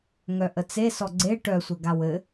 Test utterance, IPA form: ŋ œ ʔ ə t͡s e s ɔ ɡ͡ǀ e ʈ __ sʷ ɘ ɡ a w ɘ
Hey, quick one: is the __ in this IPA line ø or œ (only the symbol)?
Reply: œ